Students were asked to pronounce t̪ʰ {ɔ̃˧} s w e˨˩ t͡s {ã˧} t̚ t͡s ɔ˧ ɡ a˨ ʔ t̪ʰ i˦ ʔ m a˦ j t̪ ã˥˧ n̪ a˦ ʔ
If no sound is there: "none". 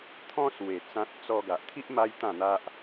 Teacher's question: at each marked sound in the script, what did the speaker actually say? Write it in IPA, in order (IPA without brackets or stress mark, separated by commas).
ɔ̃˦, ã˦